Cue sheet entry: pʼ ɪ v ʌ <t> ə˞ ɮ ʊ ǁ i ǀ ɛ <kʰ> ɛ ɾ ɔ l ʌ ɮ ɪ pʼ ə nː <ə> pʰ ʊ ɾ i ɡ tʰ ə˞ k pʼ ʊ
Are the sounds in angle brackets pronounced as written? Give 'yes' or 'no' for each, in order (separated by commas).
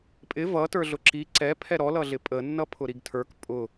yes, no, no